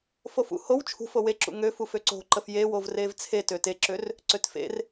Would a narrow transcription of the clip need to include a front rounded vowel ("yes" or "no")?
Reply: yes